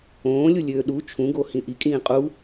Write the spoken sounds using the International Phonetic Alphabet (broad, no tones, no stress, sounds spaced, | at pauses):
õː lʲ u lʲ øː ɗ u t͡ʃʰ ũ ɡ o h ĩ ʔ i kʼ ĩː qʼ u